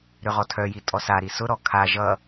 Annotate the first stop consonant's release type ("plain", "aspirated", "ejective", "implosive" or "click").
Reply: aspirated